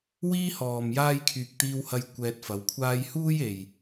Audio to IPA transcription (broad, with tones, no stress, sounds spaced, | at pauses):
w iː˥ h ɔː˨ m j aː˥ j kʰ yː˧ k̚ t̪ iː˥ w h ɐ˥ j kʷ ɛː˧ t̚ f ɐ˨˧ w kʷʰ aː˥ j h uː˥ j e˨ j